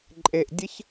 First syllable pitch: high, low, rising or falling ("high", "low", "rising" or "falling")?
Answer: low